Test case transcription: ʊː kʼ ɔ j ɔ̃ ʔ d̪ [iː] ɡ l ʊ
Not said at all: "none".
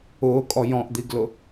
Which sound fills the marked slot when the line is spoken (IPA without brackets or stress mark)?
i